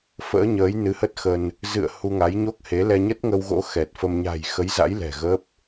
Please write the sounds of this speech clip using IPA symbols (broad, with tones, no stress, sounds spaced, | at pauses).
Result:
f ə̰ː˧˥ ɲ əː˨˦ j n ɨ˨˦ h ə˦˥ t̚ x ə˧ n | z ɨ̰˧˨ ə̯ h u˧ ŋ a˨˦ j ɲ o˦˥ k̚ h e˨˦ l ɛ˧ ɲ ə˦˥ t̚ ŋ ə˧ w ɣ o̰˧˥ x ɛ˨˩ t̚ f ə˧ m ɲ a̤˨˩ j x ə˨˦ j z a̰˧˥ j l ɛ̤˨˩ ɣ ə˦˥ p̚